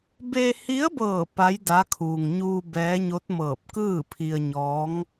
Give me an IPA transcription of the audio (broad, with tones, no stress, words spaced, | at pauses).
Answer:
be˧hi˧˥ə̯bɤː˧˩ pa˧˥jda˧˥ kʰuː˩ŋɲuː˧ bɛː˧˥ɲo˧˥t̚ mɤː˧˩p̚kɯː˥˨pʰi˧ə̯ɲɔː˧˥ŋ